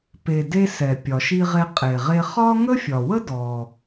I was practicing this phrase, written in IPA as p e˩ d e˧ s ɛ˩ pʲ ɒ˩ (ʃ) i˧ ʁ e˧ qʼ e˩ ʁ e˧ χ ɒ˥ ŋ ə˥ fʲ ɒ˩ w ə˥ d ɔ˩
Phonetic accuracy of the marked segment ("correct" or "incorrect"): correct